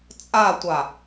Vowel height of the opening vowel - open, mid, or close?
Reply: open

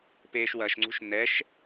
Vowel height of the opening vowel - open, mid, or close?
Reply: mid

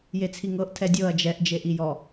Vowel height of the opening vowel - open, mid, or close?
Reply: mid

